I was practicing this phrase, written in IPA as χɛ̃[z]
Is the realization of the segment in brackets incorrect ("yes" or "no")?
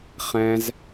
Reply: no